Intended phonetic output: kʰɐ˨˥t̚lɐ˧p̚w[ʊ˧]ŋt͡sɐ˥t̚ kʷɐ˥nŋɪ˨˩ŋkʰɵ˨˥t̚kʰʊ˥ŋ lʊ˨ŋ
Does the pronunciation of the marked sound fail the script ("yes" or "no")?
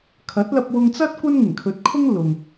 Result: no